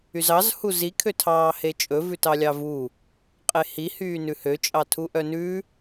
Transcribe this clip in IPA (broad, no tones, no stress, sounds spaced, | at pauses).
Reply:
y z ɑ z h u z i kʰ ø tʰ ɑː h e t͡ʃʼ ɵ v ʉ t ɑ lʲ ɑ v u | qʼ e h i h yː n ʉ h ø t͡ʃʼ ɑ tʰ u ʔ œ n ʉ